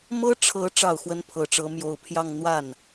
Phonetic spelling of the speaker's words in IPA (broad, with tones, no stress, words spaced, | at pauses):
mɤ˥ʈ͡ʂʰɤ˧˥ ʈ͡ʂɑ˥˩ʊ̯xwə˥npʰɤ˧˥ʈ͡ʂɤ˧˥ mjo˧˥ʊ̯pʰjɑ˥˧ŋ n̪wa˥˩n